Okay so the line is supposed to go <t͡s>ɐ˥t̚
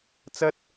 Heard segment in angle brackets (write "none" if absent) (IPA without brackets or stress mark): t͡s